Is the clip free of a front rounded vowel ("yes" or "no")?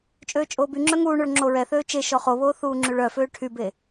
no